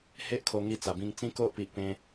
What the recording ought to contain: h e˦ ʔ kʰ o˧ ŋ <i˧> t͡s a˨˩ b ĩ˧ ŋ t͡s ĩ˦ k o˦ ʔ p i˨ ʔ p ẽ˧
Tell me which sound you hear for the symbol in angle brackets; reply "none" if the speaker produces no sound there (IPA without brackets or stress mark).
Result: i˧